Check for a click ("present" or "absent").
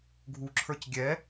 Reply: present